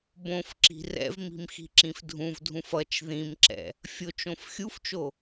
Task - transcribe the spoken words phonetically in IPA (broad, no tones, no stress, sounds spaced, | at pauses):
b õ f ǁ i̤ r ɛ̰ v m i̤ m x i̤ ǁ ĩ f dʱ ũ v dʱ ũ f ʌ t͡ʃ ð ĩ m ǁ ɛ̰ | fʲ o t͡ʃ õ f xʲ u f t͡ʃ o